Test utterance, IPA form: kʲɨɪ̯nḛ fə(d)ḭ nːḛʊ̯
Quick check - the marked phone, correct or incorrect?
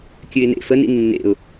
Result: incorrect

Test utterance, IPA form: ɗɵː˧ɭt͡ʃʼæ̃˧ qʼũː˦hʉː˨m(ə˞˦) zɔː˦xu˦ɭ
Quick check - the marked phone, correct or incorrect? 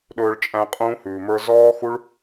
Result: correct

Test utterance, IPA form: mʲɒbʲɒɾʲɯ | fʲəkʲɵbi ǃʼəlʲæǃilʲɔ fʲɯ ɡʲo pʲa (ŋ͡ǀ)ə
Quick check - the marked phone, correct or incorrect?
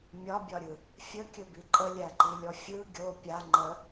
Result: incorrect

